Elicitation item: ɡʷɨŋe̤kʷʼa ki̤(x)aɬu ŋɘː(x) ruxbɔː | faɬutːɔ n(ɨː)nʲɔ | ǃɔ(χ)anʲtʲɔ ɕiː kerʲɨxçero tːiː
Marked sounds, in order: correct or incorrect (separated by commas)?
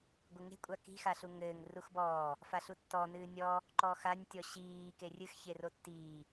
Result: correct, incorrect, correct, incorrect